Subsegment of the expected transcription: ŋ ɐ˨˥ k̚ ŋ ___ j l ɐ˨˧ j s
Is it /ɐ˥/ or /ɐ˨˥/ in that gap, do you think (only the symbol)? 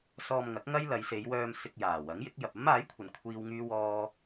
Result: ɐ˥